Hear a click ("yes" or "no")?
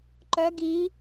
yes